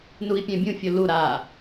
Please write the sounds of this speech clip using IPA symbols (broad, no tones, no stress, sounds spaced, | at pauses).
n u i̯ pʲ ɛ̃ bʲ ũ fʲ o l u ɾ a